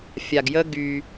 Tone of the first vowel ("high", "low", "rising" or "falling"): low